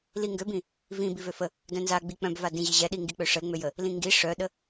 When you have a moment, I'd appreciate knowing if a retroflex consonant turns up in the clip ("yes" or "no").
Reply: yes